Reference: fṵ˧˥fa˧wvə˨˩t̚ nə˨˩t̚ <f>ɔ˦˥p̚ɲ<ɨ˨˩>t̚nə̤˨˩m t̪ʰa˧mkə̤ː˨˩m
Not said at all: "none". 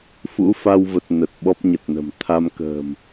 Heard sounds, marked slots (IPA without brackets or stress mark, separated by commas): ɓ, ə˨˩